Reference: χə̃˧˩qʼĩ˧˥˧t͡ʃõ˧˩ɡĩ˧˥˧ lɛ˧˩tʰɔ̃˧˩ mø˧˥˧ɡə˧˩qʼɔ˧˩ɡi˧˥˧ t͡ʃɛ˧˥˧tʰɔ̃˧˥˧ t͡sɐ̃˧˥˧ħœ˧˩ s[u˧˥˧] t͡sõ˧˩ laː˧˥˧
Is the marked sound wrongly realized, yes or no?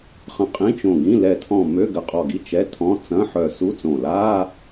no